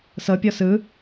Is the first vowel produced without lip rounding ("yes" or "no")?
yes